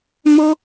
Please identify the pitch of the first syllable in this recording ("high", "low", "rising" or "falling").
high